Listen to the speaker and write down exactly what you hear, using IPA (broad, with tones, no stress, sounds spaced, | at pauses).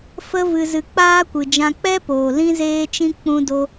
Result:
f ə˦ v ɨ˧ z ɨ˧ k͡p aː˦ kʷ ɨ˨ d͡ʒ ã˧ k͡p ɛ˦ p oː˨ l ĩ˦ z eː˦ t͡ʃ ĩ˦ k͡p ũ˦ d o˦